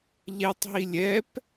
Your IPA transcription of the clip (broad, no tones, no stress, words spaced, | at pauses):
ʎɛtˤɦi lʲɛp